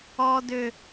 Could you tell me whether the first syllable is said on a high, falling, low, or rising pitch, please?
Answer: high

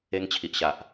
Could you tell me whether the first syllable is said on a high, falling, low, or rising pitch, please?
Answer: high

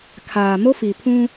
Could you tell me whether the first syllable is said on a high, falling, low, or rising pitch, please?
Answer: low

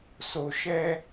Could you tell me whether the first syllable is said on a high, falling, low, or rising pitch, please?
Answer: low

